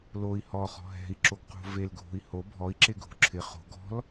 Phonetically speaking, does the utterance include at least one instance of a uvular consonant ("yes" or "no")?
yes